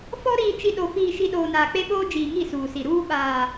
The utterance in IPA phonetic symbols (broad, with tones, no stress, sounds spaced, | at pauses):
f ɔ˦ ɾ iː˨ t͡ʃ i˨ ɗ o˨ f iː˨ ʃ i˨ ɗ oː˨ n aː˨ k͡p e˦ ɓ oː˦ d͡ʒ iː˨ ŋ i˦˨ s uː˨ s i˨ ɾ uː˦ ɓ aː˨